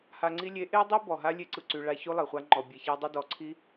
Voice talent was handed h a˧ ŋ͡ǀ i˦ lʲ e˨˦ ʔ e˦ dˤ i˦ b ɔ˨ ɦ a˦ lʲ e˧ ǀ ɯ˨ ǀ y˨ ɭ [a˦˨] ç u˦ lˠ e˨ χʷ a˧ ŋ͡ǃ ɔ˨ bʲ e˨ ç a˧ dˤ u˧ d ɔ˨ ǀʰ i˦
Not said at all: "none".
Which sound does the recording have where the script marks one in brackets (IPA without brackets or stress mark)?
a˦˨